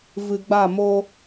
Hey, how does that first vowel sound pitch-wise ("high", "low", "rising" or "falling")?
low